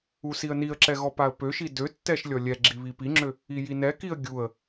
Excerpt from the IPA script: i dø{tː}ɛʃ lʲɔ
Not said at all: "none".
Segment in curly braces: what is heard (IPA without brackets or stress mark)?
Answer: tː